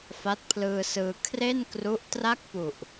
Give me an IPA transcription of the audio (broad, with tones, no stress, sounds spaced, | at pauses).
f a˦˥ t̚ pʰ l ɯː˧ s ɯː˧ kʰ r e˥˩ n k r u˦˥ ʔ t r a˥˩ k̚ p u˨˩ ʔ